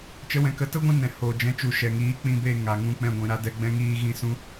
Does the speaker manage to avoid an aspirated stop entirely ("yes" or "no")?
yes